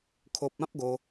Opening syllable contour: low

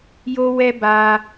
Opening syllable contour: high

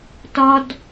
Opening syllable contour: high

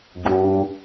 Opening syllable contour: low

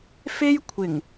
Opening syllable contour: high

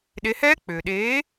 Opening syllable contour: rising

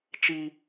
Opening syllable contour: high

